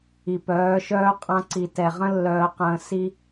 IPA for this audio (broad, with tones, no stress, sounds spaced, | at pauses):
i˨ p œː˨˦ ʃ œː˦ qʼ ã˧ ǀ i˨ t ɛ˨ ʁ ə̃˦ lː œː˧ q ə̃ː˧ s i˦